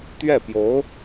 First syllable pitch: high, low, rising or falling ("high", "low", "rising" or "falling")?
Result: falling